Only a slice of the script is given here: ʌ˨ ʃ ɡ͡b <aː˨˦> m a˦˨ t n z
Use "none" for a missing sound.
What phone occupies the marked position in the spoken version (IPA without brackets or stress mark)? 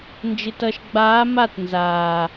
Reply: aː˨˦